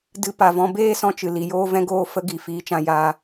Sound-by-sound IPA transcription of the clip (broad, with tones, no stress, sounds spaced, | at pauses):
d ɨ˧ p a˨ v ɔ̃˧ b eː˦ s ɔ̃˧ t͡ʃ ɨ˨ l i˨ j oː˦ v ɛ̃˦ ɡ oː˦ f ə˦ ɡ i˨ f iː˧ t͡ʃ ã˧ j aː˧